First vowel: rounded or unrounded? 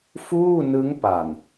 rounded